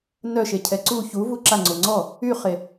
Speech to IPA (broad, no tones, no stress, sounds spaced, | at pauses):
n œ ʃ e cʰ ɛ ǀ u ç u v u ǁ a ŋ͡ǀ o ŋ͡ǀ ɔ | y χ e